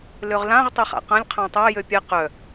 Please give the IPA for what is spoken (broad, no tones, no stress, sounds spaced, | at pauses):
l ø ʁ l ã ʁ tˤ ø χ a̰ q ã lʲ qʰ ã tˤ a j ø pʲ ɛ q œ